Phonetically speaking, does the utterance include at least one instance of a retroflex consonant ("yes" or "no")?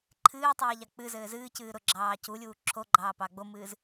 no